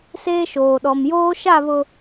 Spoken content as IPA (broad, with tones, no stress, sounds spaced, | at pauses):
s eː˦ ʃ oː˨ ɗ ɔ˨ m j oː˦ ʃ a˦˨ β ʊ˨